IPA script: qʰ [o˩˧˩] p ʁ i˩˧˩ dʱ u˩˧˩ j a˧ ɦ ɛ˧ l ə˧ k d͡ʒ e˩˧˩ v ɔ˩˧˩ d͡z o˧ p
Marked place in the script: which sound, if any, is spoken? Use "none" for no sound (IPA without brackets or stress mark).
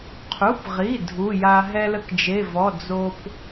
u˩˧˩